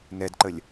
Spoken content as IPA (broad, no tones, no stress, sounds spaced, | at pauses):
n ɛ d ǃ ə lʲ